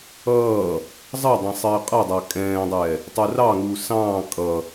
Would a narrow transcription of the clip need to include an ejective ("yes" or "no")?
yes